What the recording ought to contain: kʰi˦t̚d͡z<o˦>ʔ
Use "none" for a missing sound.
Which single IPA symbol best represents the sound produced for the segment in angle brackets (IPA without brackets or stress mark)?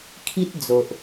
o˨